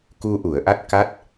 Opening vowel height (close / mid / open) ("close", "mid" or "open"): close